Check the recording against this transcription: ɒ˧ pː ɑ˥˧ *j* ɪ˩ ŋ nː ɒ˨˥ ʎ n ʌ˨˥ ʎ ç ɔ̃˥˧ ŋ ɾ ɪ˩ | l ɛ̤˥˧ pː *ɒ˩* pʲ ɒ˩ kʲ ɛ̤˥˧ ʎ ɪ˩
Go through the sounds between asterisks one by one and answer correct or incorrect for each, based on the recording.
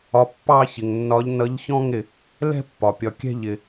incorrect, correct

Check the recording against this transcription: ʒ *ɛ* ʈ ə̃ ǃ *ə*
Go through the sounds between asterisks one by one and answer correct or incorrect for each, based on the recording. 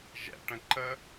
incorrect, correct

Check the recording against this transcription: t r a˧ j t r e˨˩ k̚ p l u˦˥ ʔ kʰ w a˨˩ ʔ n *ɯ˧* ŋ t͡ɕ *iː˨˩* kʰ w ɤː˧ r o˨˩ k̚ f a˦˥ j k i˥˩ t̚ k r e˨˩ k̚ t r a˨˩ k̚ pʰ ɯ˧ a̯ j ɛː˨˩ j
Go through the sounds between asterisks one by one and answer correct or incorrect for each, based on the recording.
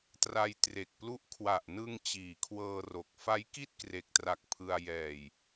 correct, correct

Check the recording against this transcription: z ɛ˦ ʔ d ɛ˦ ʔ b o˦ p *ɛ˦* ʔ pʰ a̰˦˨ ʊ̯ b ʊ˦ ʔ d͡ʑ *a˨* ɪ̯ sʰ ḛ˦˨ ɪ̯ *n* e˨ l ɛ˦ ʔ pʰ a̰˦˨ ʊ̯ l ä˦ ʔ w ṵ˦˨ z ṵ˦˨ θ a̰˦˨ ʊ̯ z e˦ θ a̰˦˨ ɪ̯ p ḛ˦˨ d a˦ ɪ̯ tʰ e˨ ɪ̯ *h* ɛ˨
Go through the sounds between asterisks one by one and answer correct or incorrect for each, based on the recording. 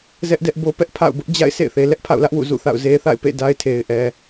correct, incorrect, incorrect, incorrect

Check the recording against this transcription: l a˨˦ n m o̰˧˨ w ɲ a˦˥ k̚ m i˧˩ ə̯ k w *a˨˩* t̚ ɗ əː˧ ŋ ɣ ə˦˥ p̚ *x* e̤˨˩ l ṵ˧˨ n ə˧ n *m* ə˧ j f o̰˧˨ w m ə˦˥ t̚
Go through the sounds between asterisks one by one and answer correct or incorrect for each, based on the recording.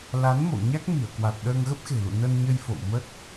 correct, correct, incorrect

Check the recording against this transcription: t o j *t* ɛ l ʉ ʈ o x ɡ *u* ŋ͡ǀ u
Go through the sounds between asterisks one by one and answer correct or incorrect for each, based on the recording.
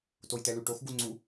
correct, correct

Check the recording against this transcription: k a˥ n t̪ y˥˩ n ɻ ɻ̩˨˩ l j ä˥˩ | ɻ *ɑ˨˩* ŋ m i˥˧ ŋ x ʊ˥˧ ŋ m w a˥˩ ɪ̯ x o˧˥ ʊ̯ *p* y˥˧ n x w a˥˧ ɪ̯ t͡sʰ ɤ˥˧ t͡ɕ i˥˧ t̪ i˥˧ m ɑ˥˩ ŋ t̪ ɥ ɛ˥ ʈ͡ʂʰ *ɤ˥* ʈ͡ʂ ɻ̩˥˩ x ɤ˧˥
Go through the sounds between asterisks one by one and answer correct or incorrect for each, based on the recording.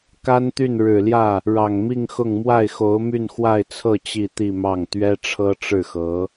correct, incorrect, correct

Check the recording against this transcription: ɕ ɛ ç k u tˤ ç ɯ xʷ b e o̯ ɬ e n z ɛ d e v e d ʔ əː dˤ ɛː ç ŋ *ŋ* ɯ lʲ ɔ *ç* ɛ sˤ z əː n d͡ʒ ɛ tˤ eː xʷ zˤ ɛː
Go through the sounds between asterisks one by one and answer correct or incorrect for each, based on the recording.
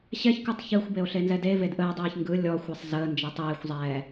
incorrect, incorrect

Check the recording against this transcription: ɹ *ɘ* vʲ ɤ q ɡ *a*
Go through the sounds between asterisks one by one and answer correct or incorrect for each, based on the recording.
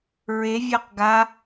incorrect, correct

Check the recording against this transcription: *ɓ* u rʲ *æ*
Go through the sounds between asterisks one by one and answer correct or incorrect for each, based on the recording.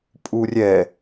incorrect, incorrect

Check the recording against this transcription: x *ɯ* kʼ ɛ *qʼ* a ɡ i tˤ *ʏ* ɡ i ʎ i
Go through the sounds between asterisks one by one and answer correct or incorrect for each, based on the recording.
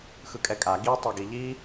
correct, incorrect, incorrect

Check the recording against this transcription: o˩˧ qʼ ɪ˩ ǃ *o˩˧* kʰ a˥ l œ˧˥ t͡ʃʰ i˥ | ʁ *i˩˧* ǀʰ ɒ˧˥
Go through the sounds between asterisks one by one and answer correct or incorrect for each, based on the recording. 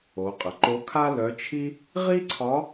incorrect, incorrect

